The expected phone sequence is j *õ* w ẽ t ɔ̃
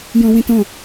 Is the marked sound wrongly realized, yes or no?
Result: yes